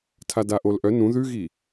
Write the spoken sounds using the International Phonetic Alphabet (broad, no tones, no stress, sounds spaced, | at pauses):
tʰ a d a ʔ o l ʔ œ n ũ ð ʉ ɣ i